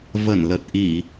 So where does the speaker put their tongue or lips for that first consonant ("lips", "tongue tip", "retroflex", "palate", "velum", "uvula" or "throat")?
lips